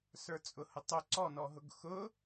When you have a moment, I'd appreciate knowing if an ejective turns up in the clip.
yes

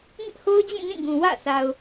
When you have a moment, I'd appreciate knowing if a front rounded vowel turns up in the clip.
no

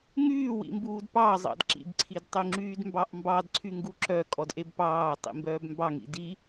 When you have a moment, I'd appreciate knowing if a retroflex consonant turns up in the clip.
no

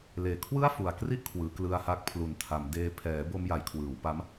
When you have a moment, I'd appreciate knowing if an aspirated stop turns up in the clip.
yes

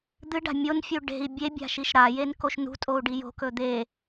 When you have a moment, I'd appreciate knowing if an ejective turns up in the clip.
yes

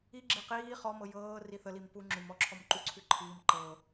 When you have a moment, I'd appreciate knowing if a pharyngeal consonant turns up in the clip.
no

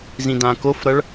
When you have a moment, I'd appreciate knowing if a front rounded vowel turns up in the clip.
no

